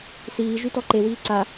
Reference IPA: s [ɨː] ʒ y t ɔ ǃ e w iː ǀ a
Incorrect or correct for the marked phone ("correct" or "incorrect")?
incorrect